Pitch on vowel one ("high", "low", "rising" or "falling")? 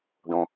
high